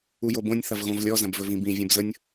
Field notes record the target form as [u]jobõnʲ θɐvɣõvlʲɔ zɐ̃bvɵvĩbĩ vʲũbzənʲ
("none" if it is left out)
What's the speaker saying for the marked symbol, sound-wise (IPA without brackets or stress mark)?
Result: u